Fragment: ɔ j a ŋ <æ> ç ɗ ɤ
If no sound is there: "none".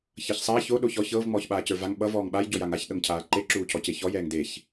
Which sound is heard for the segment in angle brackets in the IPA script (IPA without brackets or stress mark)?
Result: a